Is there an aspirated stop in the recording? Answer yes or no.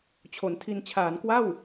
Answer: yes